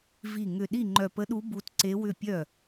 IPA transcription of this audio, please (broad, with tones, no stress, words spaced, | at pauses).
vi˧˩ ŋʏ˧˩ ɗi˥˩ŋ͡ǃœ˧˩pə˧˥ɗu˧˥ bu˧˥tǀe˧˥wʏ˥˩ pʲœ˥˩